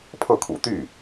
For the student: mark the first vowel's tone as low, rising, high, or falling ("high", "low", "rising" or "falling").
falling